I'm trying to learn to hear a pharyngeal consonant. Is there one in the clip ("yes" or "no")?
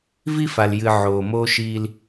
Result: yes